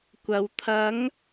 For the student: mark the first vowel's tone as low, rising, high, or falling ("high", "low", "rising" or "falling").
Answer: low